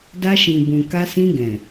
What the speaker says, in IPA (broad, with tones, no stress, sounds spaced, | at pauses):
d a˧ ʃ ĩ˨ b ũ˨ k a˧ s ĩ˧ ɡ ɛ̃˨